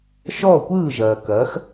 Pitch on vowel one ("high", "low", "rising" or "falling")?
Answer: falling